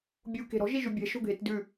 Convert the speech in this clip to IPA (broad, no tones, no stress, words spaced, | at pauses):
bʲu ke̤ɾɔ̤ ʒiʒʉbʲɛ̤ ʃo̤ɡʱetdʉ